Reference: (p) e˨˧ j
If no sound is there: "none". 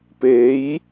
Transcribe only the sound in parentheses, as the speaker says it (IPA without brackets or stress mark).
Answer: p